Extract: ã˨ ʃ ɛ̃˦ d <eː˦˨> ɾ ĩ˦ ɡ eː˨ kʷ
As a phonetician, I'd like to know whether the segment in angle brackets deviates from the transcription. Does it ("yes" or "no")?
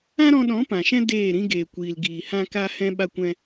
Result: no